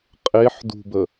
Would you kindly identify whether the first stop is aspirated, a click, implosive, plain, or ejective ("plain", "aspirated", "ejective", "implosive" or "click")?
ejective